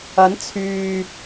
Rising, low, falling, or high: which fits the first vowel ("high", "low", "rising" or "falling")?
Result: rising